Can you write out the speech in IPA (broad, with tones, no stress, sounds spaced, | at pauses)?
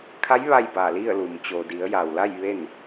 kʰ a˧˥ j ʋ a˥˨ j b aː˧˩ l i˥˨ ə̯ l uː˩ m t͡ɕ oː˩ d i˩˧ ə̯ j a˩ w l a˥˨ j ʋ e˥˨ n